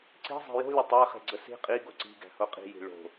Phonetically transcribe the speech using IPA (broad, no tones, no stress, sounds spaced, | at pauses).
ǀ i̤ zˤ e̤ j o̤ lʲ ə tˤ æ χ e̤ ɡ͡ǀ ə s i̤ qʼ i ɡ o ǀ i̤ ɡ æ̤ h o qʼ i̤ j i̤ ɭ o̤